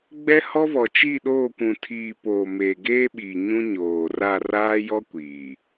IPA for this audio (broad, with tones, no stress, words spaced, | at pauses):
ɡ͡bɛ˦hɔ˦ vɔ˨ t͡ʃi˦˨ɗoː˦˨kʷũ˨ tʰiː˨ poː˨meː˨ɡeː˦ɓiː˨ ɲũ˦ɲoː˨ ra˦˨ raː˦jɔ˦ kʷiː˨